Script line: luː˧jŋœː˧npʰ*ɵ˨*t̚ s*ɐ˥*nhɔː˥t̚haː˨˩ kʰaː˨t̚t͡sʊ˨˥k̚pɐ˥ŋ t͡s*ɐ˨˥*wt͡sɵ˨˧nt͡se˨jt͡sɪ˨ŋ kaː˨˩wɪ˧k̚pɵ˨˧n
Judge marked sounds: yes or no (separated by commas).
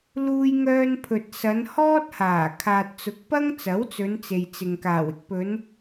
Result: yes, no, yes